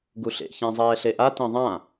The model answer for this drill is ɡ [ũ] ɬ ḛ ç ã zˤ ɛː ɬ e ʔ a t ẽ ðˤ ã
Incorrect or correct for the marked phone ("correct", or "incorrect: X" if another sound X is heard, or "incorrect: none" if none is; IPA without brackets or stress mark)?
incorrect: u